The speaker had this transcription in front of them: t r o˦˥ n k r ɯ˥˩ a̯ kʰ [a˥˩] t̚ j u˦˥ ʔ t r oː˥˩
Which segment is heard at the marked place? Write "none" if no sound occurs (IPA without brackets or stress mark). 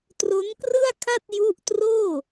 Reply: a˥˩